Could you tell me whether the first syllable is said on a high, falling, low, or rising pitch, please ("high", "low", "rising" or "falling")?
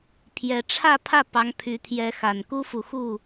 rising